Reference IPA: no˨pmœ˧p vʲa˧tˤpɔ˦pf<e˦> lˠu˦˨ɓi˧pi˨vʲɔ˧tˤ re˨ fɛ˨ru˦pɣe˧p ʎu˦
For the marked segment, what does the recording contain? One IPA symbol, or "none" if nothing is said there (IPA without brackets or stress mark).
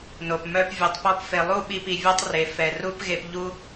e˧